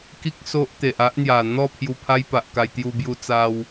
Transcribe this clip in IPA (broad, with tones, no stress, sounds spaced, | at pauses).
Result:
k i˦ k̚ s o˦ ʔ t̪ e˨ ʔ a˦ ʔ n̪ j a˨˩ n̪ ɔ˥˧ pʰ j u˧ pʰ a˦ j p a˨ ʔ k a˧ j t̪ j u˧ b j u˧ t͡s a˦ w